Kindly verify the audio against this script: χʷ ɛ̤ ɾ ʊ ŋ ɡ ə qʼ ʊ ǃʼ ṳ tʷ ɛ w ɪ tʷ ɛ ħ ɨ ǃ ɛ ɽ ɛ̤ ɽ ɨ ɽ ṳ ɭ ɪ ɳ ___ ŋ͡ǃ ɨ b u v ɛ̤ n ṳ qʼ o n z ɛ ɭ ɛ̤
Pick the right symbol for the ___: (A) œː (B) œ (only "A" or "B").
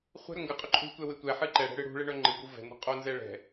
B